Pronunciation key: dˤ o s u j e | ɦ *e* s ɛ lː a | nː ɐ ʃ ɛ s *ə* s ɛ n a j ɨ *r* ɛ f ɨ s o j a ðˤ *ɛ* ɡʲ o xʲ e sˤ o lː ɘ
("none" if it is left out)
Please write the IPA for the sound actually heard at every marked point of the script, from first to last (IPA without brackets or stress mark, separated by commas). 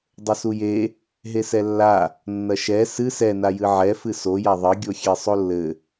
e, ɨ, ʕ, ɘ